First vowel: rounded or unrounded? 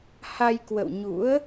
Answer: unrounded